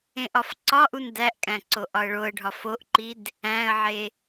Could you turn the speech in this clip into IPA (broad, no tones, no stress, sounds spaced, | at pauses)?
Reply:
ẽ ʔ ɒ f ǀ ɒ ʔ u n d æ ʔ kʼ æ̃ ǀ o ʔ ɒ ə̯ ɭ o ə̯ ɖʱ ɒ f o ʔ ǃ i d | æ̃ ə̯ ʕ e